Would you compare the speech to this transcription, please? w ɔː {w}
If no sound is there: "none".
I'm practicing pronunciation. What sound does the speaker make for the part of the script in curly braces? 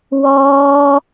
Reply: none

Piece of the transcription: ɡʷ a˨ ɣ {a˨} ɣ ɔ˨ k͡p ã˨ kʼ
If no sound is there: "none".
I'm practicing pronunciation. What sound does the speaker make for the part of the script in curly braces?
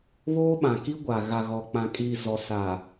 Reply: a˨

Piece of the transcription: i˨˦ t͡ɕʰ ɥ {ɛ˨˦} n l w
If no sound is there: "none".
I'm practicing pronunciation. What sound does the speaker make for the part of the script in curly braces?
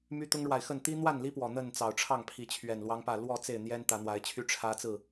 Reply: ɛ˨˩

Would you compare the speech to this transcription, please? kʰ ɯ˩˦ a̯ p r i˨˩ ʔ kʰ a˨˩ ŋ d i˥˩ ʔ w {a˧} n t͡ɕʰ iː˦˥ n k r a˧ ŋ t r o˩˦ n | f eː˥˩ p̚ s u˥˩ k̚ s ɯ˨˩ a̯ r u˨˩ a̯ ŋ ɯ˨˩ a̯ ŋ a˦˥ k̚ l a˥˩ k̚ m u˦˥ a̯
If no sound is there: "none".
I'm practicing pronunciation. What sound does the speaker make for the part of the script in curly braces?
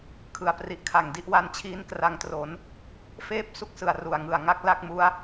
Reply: a˧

